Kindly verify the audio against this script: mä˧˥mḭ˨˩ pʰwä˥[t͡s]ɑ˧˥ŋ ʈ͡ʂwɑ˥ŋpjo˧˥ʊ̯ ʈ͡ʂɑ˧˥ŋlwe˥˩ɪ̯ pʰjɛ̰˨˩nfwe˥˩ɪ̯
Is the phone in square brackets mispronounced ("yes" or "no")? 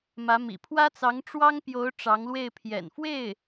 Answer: no